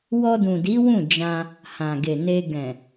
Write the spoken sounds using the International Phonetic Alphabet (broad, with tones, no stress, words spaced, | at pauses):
wɔ˧dũ˨di˨˦ wũ˦˨d͡ʒã˧ | hã˨ɡe˨ ne˧ ɡɛ̃˨